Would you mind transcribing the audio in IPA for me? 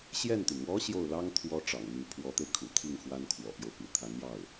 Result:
ɕjɛ˥˩nt̪y˩n wɔ˧˥ ɕjo˥˩ʊ̯ lɑ˥ŋ t̪ʰwɔ˥ ʈ͡ʂɑ̰˨˩ŋn̪y˧˥ pʰwɔ˧˥t̪e˧ɪ̯kʰṵ˨˩t̪ʰi˥˩ŋ xwa˥nkʰwɔ̰˨˩pjo˦ʊ̯pḭ˨˩ t̪ʰa˧˥njɑ˥˩ʊ̯

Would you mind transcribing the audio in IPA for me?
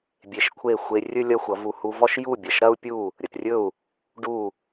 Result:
bʲe˧ʃkʷʰe˥˩ xʷe˧rʲɵ˥ lʲʌ˥xʷʌ˩˥vu˧ hu˧vɔ˥ʃ ju˥˩bʲɐ˩ʃɾɐ˥u̯ pʲu˥˩ | ɾʲə˩trʲɵ˥˩u̯ | ɖu˥˩

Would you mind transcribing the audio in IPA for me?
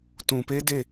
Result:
tũ˨pe˦ de˦˨

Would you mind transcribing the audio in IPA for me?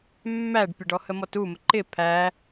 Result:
mːæɖpʲəɖɔ həmɔtumə ǃɪ pʰæ

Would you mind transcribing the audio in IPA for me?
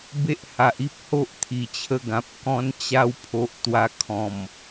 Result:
be˦ʔha˨ʔi˦p̚ ho˦ʔt̪ʰi˨˩t͡ɕʰə˧ɡã˨p̚ kɔ̃˧nt͡ɕa˧w pʰo˨ʔ t̪wa˧kʰɔ̃˨˩m

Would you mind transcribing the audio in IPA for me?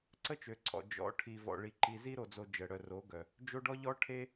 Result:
ǀə˦t͡ʃø˨ǀʰɔ̰˨ d͡ʒɔ̰˨˦ʈʰi˨ vɔ̰˨ɭi˨ ǃi˨zi˦ɾo˨d͡zo˨ d͡ʒə˨ɽœ˨ro˨˦ɡœ˨ | d͡ʒo˦ɖɔ˦ ʎɔ˦ʈʰe˦

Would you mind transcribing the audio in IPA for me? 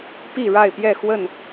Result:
pi˥˨ɻa˥˨ɪ̯pjɛ˥˨xwə˥˨n

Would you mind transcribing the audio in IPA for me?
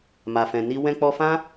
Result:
ma˨fɛ̃˨ni˧ wɛ̃˧k͡pɔ˧fã˦

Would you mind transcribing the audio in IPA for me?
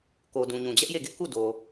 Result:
ko˨dũ˨ ɲũ˨d͡ʑɛ˦ʔ je˦˨ɡɪ˦ʔku˦˨ do˨

